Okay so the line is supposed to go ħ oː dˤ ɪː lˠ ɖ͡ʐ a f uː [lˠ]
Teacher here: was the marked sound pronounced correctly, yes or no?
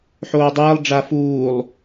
yes